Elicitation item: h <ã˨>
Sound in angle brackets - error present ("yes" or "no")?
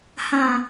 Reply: no